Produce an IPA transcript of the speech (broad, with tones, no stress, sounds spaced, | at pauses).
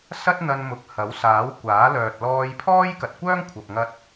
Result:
s ɐ˥ t̚ n̪ ɐ˧ n m ʊ˨˥ k̚ h ɐ˨˥ w s aː˨˥ w kʷ aː˨˥ l œː˨ t̚ l ɔː˧ j pʰ ɔː˥ j k ɐ˨ t̚ kʷ œː˥ ŋ kʷʰ ɐ˨ p̚ ŋ ɐ˧ t̚